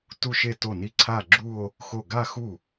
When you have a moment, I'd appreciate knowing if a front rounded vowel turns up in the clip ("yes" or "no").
no